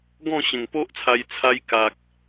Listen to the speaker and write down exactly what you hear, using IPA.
ɡ ɔ̃˥˧ ɕ ẽ˨˩ ŋ p o˦ ʔ t͡sʰ a˧ j t͡sʰ a˧ j k a˨ k̚

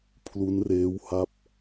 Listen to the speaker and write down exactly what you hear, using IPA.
pʰ l u˦˥ n r eː˦˥ w h a˦˥ p̚

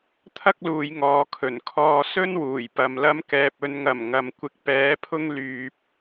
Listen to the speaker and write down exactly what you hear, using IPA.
t̪ʰ ɐ˥ k̚ l uː˨˧ j ŋ ɔː˨ kʰ ɵ˨˩ n kʰ ɔː˧ s ɵ˥ n w uː˨˩ j p ɐ˨ m l ɐ˥ m k ɛː˧ p̚ ɵ˨ n ŋ ɐ˨˩ m ŋ ɐ˨ m kʷ ɪ˧ k̚ p ɛː˨˥ pʰ ʊ˥ ŋ l yː˧ p̚

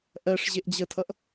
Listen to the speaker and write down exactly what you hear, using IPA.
ʔ ɜ ʂ ʑ e ʔ d͡ʑ ə tʰ ʌ ʔ

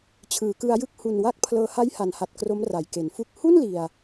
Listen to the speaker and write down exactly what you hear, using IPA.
t͡ɕʰ ɯː˩˦ k ɯ˧ a̯ j ɯ˥˩ k̚ h u˨˩ n w a˦˥ k̚ pʰ l ɤː˧ h a˦˥ j h a˩˦ n h a˨˩ t̚ k r o˦˥ m r a˩˦ j k e˩˦ n f u˥˩ k̚ h u˥˩ n l i˨˩ a̯

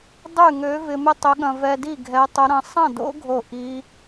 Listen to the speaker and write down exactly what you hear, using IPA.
dˤ y˥˨ ŋ ø˧˥ v ɪ˧ m ɪ˥˨ tˤ ʏ˧˥ ɠ ɐ̃˧ v ɛ˧ d i˥˨ ɡʱ ɛ˧˥ tˤ ʊ˧˥ ɾ ɐ̃˧˥ sˤ ɐ̃˥˨ d o̰˧˥ ɡʱ o˥˨ ʔ i˧˥

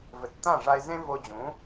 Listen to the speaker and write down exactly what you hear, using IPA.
v ɘ˨ t t̪ ã˦˨ ʐ a˧ ɪ̯ z ẽ˦ v o˧ d͡ʑ ũ˨˦

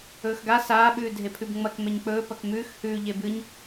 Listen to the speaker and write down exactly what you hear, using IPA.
ɵː x ɡ a s aː ɓ ʉː dʱ e pʰ ʉ b ŋ͡m ɐ k m e ɲ k͡p ɵː p ɐ k m ʉː x h ʉː ʎ e b ɨ ɲ

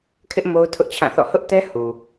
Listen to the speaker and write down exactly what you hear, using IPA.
kʰ ɪ˦ ʔ m o˦ ʊ̯ tʰ ʊ˦ ʔ t͡ɕʰ ã˦˨ θ ɔ̰˦˨ h ʊ˦ ʔ t ɛ˦ h u˨

